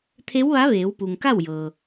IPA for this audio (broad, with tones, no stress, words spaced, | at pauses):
t̪ʰe˧˥wʋa˧˥ʋeː˩˧wpu˩ŋ ka˥˨wjɤː˩